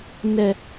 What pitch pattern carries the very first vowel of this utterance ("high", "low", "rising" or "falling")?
low